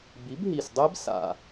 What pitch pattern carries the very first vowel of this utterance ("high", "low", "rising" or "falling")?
rising